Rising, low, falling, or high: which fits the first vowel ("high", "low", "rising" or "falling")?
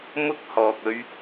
high